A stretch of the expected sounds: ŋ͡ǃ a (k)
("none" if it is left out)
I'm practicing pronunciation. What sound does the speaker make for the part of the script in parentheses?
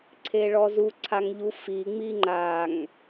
ŋ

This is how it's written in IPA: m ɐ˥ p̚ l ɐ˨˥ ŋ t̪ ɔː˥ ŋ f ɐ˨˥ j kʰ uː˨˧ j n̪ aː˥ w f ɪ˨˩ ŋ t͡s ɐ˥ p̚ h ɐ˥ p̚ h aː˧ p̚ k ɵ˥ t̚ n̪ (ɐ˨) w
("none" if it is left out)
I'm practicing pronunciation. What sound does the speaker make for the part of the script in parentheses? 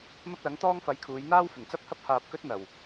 ɐ˨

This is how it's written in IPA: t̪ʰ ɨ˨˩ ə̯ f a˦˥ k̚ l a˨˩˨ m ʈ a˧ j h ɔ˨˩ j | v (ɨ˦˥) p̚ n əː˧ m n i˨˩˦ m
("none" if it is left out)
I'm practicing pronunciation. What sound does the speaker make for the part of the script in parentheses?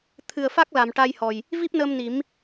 i˦˥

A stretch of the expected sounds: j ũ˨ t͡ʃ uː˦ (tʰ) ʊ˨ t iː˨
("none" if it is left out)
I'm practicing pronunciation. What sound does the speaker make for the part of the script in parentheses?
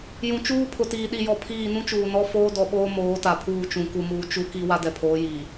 pʰ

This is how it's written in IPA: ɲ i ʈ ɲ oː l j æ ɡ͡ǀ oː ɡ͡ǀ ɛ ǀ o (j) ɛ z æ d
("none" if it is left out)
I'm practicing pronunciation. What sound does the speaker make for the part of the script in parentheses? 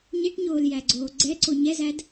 ɲ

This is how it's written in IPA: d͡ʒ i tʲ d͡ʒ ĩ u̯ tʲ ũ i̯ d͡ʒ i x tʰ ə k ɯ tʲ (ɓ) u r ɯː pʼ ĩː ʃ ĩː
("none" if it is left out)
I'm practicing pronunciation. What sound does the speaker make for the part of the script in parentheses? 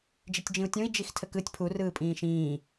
pʰ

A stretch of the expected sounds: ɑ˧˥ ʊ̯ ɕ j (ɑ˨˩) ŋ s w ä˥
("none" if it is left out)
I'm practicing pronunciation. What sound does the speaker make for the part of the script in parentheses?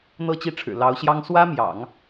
ɑ˥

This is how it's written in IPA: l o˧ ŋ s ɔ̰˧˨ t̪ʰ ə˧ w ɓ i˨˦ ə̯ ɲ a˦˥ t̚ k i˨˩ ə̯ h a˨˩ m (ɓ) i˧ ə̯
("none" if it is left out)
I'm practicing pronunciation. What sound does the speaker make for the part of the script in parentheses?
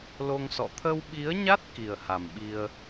ɓ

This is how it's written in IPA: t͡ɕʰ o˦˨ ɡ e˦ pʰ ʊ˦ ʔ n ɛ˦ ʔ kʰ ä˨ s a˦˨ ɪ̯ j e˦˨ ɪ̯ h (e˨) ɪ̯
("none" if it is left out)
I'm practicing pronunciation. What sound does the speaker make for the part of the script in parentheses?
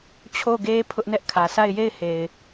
e˨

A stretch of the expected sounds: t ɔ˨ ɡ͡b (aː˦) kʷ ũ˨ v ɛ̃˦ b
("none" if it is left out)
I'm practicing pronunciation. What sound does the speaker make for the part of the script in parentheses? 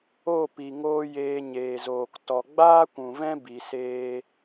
aː˦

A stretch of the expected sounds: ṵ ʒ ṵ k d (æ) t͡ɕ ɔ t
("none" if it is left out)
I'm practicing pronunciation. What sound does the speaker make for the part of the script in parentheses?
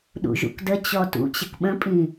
ə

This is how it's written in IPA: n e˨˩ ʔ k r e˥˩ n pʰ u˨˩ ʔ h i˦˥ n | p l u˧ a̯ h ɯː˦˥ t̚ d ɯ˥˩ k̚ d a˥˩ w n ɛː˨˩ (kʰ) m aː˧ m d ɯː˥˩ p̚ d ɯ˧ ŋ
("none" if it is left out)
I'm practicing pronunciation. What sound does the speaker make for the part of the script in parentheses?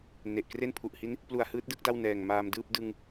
ŋ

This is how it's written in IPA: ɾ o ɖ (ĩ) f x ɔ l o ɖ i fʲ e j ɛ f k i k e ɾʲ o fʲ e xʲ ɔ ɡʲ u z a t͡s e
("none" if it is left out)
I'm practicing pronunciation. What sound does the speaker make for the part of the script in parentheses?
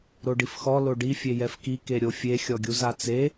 i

